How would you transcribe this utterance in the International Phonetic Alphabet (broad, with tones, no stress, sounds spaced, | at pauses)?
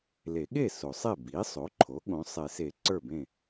l e˨˩˦ ɠ e˥˩ s o˨˩˦ sˤ e˥˩ b i˩˥ sˤ o˩˥ ǃʰ o˩˥ ɠ õ˩˥ sˤ e˨˩˦ s e˨˩˦ ǀ ə˞˥˩ b ẽ˥˩